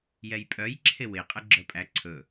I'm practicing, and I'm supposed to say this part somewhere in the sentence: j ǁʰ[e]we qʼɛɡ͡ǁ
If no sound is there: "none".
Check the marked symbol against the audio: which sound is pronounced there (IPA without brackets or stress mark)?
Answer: e